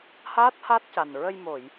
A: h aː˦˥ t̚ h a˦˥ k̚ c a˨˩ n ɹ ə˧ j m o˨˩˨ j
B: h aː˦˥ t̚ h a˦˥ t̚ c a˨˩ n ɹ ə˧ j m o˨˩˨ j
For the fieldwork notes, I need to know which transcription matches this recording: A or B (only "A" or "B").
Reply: B